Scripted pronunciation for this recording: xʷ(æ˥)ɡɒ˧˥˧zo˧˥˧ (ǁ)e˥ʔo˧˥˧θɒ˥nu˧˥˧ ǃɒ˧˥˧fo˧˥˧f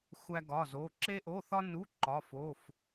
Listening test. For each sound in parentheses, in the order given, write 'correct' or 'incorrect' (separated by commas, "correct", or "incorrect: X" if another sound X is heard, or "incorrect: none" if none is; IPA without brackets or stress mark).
correct, correct